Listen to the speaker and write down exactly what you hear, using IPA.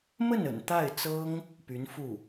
m ə˥˩ n ə̰˨˩ n t̪ a˥˩ ɪ̯ t͡s ɤ˥ ŋ | p y˧˥ n f u˥˩

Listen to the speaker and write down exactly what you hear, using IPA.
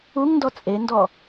u ŋ n d ɔ t͡sʼ e n d ɔ

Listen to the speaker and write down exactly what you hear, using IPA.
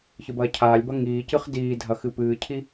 ç ɨ b ɐː cʰ aː lʲ b ɐ ŋ iː c ɨ χ d iː dʱ ɐ x ɨ p ɨː cʰ i

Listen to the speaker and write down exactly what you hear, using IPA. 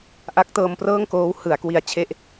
ʔ a˦˥ k̚ t ɤː˧ m p r ɤː˥˩ ŋ k oː˦˥ w h ɯ˩˦ a̯ k w i˧ a̯ t͡ɕʰ e˦˥ ʔ

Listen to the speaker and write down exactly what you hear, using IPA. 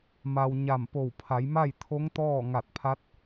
m a˧ w ɲ a˧˩ m p o˧˩ w pʰ a˩˧ j m a˥˨ j t̪ʰ o˧˥ ŋ t̪ ɔː˥˨ ŋ a˧˩ t̚ pʰ a˧˥ t̚

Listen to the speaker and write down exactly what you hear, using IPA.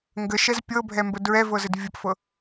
ŋ ɡ ə ʃ ɛ z pʲ ɤ bʱ ɛ m b ə d ɹ ɛ v ɤ z ɘ d vʲ ə p f ɤ

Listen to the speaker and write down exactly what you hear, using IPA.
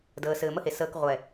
d əː˨ s ɘː˨ m ə˦ h e˨ s əː˨ k ʁʷ ɛ˨

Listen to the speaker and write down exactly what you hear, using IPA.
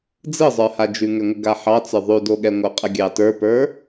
d͡z ɯ zˤ ə˞ h a d͡ʒ ʉ ŋ ɛ ŋʷ ə ɡ a ħ ɑ t͡s ə˞ ðˤ ʉ d o ɠ ɛ ŋʷ ɯ qʼ ə ɡʲ ɑ t ə˞ p ə˞

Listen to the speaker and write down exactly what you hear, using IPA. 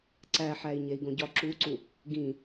ǀ æ ħ æ i̯ ɲ e i̯ ɡ õ ɟ ɒ ǁ u ǀ u | ɡ ĩ

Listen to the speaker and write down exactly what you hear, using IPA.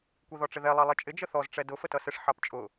kʷ i ð ɔ ʈ͡ʂ ɪ ð ɛ lˠ ɑ lˠ ɛ t͡ʃʼ ɪ d͡ʒ ə θ ɔ z ʈ͡ʂ ɛ d ʊ f ə t ʌ s ɪ ʂ ħ ɑ p t͡ʃʼ ʊ

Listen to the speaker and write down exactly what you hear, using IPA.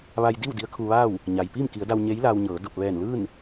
ʋ a˧ j d i˥˨ w d i˧˥ ə̯ kʰ u˧ ʋ aː˥˨ w | ɲ a˩ j p iː˥˨ m k i˩˧ ə̯ d a˧ w ɲ e˧˥ j l aː˧ w ɲ ɤː˩˧ d o˧˩ p̚ ʋ ɛː˧˩ n l ɯː˥˨ n

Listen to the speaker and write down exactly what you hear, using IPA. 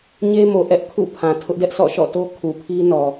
ɲ e˦ m o˨ ʔ ɛ˦ ʔ kʰ ṵ˦˨ pʰ ã˨ tʰ ʊ˦ ʔ d ɛ˦ ʔ sʰ ɔ̰˦˨ ʃ ɔ̰˦˨ t o˦ kʰ u˨ pʰ i˦ n ɔ˨

